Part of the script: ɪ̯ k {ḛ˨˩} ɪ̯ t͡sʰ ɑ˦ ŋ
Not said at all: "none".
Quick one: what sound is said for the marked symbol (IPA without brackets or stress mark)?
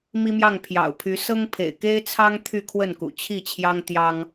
e˦